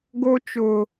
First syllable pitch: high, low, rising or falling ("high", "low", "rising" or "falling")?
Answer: high